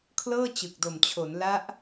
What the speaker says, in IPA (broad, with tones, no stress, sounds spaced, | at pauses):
kʰ l ɤː˥˩ t͡ɕ ɯ˨˩ k̚ d o˨˩ m t͡ɕʰ o˩˦ n l a˦˥ ʔ